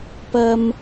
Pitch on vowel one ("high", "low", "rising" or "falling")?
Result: high